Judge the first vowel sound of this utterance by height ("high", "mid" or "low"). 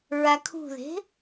low